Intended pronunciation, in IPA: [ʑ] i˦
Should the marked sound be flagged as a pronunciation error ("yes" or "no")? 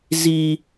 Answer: yes